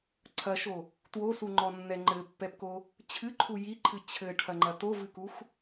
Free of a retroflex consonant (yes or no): no